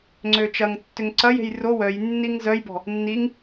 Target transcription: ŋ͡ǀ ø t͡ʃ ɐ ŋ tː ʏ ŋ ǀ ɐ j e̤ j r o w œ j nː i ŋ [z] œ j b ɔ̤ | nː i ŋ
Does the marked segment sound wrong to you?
no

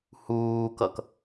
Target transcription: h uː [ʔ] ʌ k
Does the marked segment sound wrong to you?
yes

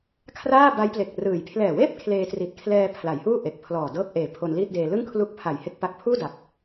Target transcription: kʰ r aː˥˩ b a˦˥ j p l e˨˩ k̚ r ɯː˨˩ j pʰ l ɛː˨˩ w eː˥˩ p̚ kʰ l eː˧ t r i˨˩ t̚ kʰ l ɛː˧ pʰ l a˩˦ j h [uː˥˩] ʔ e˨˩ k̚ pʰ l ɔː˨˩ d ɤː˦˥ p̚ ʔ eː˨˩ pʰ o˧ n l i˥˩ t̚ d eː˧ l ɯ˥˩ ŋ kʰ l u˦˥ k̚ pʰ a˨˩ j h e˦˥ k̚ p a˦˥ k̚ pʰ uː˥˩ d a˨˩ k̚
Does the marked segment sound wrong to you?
no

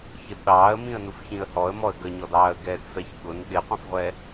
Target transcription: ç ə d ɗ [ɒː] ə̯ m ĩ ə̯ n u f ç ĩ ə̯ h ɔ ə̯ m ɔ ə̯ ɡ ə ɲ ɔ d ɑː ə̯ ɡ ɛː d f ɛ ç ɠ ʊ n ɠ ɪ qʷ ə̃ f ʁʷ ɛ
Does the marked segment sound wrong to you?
yes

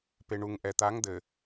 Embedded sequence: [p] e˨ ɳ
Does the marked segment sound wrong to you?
no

